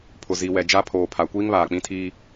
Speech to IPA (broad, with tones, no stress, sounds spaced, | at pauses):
pʰ ʊ˨ z i˨ w ɛ˨ d͡ʒ a˦ pʰ oː˨ pʰ a˨ kʷ iː˦ ŋ β aː˨ k͡p ĩ˦ tʰ iː˦